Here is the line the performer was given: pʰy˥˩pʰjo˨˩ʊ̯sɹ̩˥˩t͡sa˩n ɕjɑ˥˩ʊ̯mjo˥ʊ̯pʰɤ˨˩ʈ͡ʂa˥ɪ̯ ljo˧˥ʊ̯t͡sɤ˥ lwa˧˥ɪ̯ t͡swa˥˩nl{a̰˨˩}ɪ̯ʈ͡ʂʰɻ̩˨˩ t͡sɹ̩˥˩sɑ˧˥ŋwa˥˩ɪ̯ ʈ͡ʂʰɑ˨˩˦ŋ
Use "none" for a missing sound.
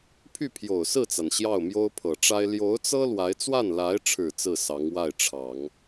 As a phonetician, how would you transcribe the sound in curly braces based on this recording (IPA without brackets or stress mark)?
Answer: a˧˥